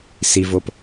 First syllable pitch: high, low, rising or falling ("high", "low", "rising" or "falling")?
low